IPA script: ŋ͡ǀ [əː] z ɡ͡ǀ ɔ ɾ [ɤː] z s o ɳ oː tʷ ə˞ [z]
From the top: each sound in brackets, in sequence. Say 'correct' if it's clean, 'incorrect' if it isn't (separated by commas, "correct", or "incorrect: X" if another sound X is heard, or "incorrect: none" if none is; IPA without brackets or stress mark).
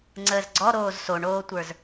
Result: correct, incorrect: oː, correct